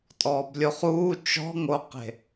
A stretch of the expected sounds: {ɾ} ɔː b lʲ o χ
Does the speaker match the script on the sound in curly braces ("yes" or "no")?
no